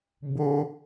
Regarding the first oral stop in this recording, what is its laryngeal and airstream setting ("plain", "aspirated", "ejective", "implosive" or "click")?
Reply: plain